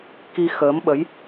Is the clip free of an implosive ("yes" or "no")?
no